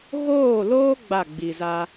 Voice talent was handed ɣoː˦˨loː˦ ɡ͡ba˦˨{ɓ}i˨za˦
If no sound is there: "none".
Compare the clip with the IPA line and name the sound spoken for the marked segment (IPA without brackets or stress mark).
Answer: ɡ͡b